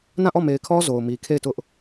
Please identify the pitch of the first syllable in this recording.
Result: falling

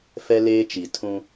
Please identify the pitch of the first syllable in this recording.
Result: high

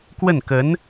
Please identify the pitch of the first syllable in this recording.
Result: falling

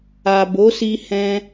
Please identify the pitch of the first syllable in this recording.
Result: low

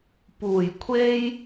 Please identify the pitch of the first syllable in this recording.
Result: low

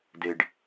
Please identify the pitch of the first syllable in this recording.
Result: low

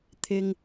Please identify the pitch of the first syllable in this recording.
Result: high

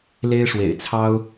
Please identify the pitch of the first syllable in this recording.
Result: high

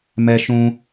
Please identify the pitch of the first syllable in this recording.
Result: high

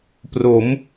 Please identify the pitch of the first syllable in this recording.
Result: rising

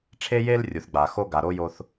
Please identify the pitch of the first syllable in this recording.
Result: high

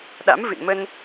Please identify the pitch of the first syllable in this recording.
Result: rising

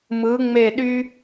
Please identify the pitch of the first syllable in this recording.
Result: rising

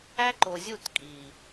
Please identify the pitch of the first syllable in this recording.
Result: high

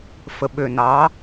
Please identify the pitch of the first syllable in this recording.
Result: low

